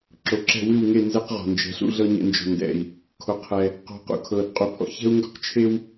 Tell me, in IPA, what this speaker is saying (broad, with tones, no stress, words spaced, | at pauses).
ǁo˨ǁɛ̤˦˨ wɨ˦˨wŋe˦˨ nzɛ˦qʁɔ̤˨ nd͡ʒɛ̤˨ɬṵ˧ ɮɤ˦ɲɛ̰˧nd͡ʒɔ̤˨ ndɛ̰˨i̯ | kʰo˨qʰɛ˨ | qɔ̤˧qṵ˧ kʰɤ˨d qʼu˨pʰɔ̰˦çɛ̤˦u̯ ŋɡɔ̤˦q t͡ʃʰe˦w